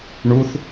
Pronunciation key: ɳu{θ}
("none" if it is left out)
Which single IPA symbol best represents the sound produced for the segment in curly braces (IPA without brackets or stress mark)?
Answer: θ